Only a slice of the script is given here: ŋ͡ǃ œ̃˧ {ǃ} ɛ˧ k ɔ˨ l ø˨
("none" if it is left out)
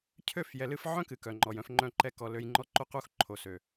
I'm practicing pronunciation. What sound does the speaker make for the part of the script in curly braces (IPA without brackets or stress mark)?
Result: ǃ